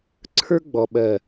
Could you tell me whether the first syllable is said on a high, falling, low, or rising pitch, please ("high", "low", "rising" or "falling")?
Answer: high